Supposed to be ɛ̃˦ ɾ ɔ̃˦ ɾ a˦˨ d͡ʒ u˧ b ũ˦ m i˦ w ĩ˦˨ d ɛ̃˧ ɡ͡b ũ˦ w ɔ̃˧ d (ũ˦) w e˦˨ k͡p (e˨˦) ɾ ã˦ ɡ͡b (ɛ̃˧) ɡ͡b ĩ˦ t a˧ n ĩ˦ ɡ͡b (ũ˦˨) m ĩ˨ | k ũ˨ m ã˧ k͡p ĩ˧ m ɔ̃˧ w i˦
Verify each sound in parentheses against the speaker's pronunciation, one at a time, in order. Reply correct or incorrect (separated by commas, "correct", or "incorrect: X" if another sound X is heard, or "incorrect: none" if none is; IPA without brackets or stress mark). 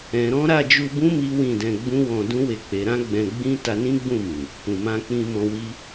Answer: correct, correct, correct, correct